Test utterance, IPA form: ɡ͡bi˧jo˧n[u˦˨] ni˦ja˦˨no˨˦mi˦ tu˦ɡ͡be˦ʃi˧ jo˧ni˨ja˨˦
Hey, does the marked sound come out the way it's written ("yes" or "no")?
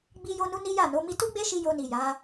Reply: no